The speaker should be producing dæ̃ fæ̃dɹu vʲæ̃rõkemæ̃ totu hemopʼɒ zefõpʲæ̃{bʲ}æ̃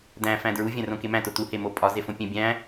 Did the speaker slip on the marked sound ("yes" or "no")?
no